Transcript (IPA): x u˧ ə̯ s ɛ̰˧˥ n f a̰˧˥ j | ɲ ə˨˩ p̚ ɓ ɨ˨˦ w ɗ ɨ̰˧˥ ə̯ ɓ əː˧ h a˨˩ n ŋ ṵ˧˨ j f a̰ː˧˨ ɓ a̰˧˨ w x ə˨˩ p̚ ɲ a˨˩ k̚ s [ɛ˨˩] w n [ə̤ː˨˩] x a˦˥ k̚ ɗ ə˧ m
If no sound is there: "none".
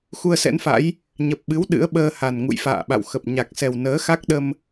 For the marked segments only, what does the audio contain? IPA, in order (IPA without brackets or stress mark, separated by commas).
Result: ɛ˨˩, əː˨˦